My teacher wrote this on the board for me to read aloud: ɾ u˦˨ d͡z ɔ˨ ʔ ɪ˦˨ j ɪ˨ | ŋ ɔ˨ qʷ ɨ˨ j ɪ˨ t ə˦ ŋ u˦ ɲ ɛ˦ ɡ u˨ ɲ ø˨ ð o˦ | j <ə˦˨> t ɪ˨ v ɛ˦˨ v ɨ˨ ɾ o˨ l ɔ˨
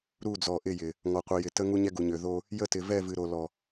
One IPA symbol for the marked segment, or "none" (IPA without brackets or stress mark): ə˦˨